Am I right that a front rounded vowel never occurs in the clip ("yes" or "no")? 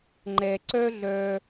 no